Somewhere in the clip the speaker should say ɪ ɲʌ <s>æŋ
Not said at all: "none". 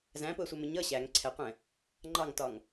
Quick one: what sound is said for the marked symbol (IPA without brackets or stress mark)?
ɕ